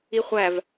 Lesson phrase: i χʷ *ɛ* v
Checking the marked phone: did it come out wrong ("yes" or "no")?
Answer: yes